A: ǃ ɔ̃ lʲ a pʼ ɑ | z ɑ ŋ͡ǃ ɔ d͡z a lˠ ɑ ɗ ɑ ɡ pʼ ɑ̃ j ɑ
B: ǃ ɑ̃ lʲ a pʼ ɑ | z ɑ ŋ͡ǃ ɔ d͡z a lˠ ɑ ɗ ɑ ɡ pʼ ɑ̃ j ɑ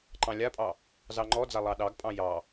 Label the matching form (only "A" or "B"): B